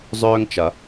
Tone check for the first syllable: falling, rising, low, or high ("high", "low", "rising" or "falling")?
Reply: high